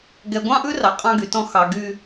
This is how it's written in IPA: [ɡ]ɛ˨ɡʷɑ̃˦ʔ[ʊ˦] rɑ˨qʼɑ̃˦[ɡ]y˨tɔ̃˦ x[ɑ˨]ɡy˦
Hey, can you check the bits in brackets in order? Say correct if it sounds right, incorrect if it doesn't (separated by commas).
correct, incorrect, correct, correct